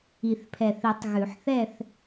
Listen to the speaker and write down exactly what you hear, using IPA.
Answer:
i˨˩θpʰɛ˨˩θi˨˩˦tˤ ɣʉ˨˩˦ħθɛ˥˧θ

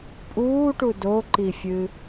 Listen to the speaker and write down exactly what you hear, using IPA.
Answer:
pʼuːʈu doǃifʲɨ

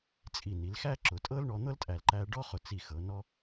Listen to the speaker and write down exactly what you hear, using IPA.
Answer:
t͡sʼi˧˩ni˩˧l xæ˥ǁʊ˩˧ tʼɤ˥lɳɔ˧n̪ɤ˥ltʼæ˧˩l ǃæ˧ ɖɔ˥χʊ˧˩t͡si˧˩xɤ˩˧ nɔ˧

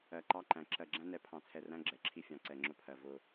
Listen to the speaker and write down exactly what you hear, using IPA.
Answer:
ɜ˨ǃɑ˦ǃæ̃˨ ǁɜ˨ɡ͡ǁæ̃˦nɛ˨˦ pʰɑ̃˨t͡sʰɛ˨ræ̃˦ ɡ͡ǁɛ˨ǁʰi˦fʲɑ̃˨ ǀɛ˨ŋ͡ǁʊ˦pʰɜ˨ vʊ˦

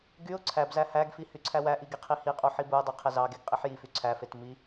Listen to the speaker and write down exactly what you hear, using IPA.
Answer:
ɡyʊ̯ ǀʰæbzæ hæɡfi hyǀʰæwæʔi ɡiqʰihiqʼu ħibuə̯dˤe qʰezɑɡeɡ qʼiħjify ǀʰæfet mi

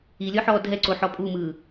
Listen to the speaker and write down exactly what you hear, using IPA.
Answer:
ilʲɔħɔː dʱɛǀoħɔ pʼumɯː

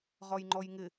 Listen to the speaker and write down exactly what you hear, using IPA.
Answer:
ʁɔjŋ͡ǃɔjŋɪ

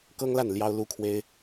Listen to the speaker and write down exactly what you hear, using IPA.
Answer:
kɤ˥ŋla˥˩n ljɑ˥ʊ̯lu˥kʰwe˥ɪ̯

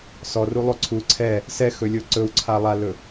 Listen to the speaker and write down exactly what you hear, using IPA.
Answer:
sɔrulˠo ǀʰu ǀʰɛ | sɛxɵlʲo ǀɵwǀʰalˠalɵ

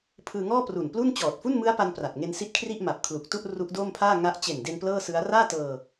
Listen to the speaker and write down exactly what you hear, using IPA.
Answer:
pʰɯː˧ŋɔː˥˩pru˨˩n plu˥˩n t͡ɕɔː˨˩t̚fu˥˩nmɯ˦˥a̯pa˧n pra˨˩t̚ŋe˧nsi˦˥t̚kʰri˥˩ʔ ma˨˩p̚kʰlu˨˩k̚tu˥˩ʔ ru˦˥ʔdoː˥˩mpʰaː˥˩ ŋa˦˥ʔ t͡ɕe˨˩nde˧n plɤː˥˩sɯ˦˥a̯ raː˥˩tɤː˧

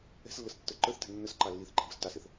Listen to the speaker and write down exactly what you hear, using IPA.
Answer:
ɛ̤slːəstːə˞ ǃə˞θtɛ̤ nːəs ǃɑlːiθǃɛ̤ bəstɑsɛθ

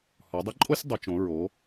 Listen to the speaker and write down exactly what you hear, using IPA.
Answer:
hɔ˩˧dˤɛ˥ǃʼo˥sʲ dˤo˩˧t͡ʃõ˩˧ ɹo˩˧

